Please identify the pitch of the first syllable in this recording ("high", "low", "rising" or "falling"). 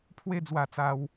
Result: high